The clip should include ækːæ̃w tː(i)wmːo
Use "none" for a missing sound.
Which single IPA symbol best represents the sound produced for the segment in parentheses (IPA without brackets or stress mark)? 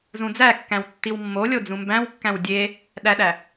i